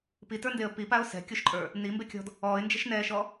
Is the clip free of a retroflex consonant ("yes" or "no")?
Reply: yes